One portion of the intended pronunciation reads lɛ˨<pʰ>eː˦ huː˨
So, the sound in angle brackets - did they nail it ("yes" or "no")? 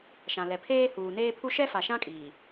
yes